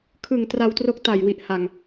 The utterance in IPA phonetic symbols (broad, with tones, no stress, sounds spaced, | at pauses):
kʰ ɯ˨˩ ŋ t r a˧ w t r o˦˥ k̚ t a˨˩ j w i˨˩ ʔ h a˨˩ ŋ